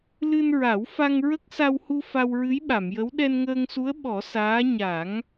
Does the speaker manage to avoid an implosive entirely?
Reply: no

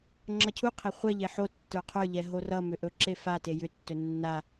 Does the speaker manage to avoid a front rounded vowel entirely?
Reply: no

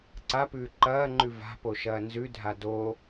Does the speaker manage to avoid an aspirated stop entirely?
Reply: yes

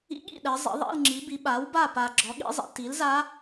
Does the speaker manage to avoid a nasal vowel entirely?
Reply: yes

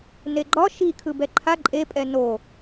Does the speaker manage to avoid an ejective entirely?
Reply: no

